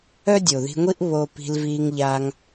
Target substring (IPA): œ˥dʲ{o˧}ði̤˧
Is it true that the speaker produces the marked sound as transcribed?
no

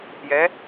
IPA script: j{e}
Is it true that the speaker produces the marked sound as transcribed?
no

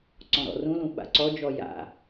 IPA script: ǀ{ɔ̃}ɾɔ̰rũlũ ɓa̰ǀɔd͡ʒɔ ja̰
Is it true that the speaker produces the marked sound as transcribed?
yes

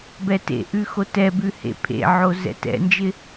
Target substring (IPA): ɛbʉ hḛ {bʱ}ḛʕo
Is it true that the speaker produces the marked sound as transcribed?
no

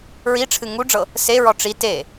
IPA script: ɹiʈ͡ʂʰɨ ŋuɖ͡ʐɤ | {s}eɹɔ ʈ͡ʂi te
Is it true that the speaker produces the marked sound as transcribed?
yes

